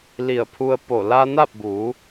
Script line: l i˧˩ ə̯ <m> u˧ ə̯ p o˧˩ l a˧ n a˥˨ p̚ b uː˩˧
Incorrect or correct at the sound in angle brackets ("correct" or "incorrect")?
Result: incorrect